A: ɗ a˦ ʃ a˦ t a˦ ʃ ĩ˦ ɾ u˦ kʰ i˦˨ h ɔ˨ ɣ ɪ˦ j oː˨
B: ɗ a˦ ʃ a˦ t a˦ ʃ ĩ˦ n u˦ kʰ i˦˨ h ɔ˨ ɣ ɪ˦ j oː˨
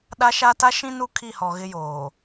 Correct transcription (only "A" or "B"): B